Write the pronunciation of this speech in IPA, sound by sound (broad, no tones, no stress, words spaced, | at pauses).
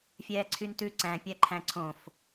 fʲɛːǀʰyntʉ ǀæ̃ pʲæǃʰæ̃ǀʰõf